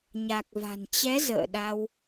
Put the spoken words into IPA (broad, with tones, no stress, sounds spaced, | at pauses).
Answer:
ɲ a˨˩ k̚ v a̤˨˩ n t͡ɕ ɛ˨˦ z ə̰ː˧˨ ɗ a˧ w